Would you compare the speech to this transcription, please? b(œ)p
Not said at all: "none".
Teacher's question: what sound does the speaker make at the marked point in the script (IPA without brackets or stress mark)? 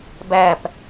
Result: æ